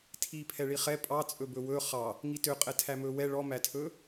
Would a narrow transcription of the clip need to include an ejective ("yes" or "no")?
yes